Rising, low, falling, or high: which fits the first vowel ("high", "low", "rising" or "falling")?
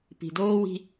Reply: low